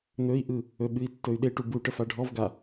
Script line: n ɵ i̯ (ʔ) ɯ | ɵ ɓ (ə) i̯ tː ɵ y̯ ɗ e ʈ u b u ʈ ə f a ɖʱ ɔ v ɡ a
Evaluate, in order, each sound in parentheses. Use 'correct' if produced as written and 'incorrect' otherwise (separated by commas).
correct, incorrect